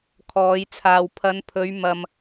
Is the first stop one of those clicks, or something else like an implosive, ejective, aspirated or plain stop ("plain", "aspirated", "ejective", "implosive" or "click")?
aspirated